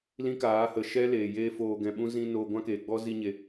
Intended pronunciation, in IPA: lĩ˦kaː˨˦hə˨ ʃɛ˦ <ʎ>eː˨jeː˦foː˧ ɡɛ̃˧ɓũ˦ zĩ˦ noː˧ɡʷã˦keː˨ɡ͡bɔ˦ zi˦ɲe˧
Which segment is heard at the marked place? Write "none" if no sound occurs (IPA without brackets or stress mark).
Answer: l